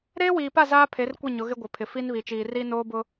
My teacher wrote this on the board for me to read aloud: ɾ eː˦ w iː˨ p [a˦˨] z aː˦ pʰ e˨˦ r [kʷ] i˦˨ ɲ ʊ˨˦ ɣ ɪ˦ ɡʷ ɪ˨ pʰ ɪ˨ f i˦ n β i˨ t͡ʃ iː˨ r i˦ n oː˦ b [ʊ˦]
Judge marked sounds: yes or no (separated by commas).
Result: yes, yes, yes